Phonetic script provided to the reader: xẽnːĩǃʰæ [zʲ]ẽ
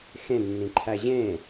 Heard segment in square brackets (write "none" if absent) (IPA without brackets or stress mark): ʑ